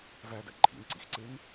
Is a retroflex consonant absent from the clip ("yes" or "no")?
yes